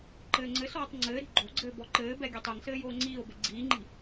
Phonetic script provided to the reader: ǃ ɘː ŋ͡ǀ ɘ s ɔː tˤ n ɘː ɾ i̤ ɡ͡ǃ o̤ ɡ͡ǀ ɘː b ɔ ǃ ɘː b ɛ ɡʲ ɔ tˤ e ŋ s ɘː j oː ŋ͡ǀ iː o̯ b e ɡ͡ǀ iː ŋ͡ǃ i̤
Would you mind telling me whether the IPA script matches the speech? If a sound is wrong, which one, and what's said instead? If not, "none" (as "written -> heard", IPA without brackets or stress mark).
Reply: n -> ŋ͡ǀ